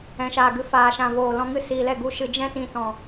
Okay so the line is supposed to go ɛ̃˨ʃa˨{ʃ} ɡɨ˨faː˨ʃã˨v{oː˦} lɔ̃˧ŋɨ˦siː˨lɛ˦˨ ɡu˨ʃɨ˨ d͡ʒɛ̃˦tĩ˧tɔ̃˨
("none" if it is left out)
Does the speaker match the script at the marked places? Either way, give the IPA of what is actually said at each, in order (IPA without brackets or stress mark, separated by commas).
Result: none, oː˨